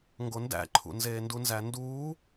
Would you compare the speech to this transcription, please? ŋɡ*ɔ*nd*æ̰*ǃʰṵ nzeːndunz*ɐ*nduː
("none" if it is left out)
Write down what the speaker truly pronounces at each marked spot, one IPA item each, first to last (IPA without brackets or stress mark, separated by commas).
o, æ̰, æ